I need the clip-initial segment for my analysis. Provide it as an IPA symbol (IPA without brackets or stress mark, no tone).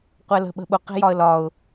qʷ